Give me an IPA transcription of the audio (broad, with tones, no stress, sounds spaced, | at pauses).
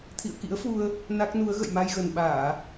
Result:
t̪ʰ ḭ˧˨ ə̯ k ḭ˧˥ ə̯ f u˧ ə̯ | n a˦˥ k̚ n u˨˦ ə̯ ɣ ə̰˧˨ j m a˧ j ɣ ə˨˩ n ɓ aː˧˩˨